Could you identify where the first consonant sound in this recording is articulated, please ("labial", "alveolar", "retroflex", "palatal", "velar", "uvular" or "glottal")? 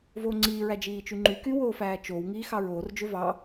labial